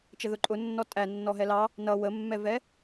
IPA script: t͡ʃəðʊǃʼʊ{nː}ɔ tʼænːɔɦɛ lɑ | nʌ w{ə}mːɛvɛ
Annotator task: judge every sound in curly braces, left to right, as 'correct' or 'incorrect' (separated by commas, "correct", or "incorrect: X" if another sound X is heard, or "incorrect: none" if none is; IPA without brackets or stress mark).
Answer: correct, correct